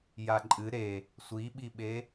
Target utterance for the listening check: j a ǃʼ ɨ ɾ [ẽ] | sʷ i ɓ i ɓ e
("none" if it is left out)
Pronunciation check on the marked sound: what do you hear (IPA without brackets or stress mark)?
e